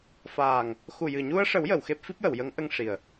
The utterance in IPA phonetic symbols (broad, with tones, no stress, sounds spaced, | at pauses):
f aː˨˩ ŋ | x u˨˩ j ɨ˨˩ ɲ u˧ ə̯ ʂ ə˨˩˦ w j ə˨˩˨ w x e˦˥ p̚ f i˦˥ p̚ j ə˨˩˨ w j ə˧˥ ŋ ʔ ə˧ ŋ ʂ i˨˩ ə̯